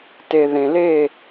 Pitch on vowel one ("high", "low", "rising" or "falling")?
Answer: low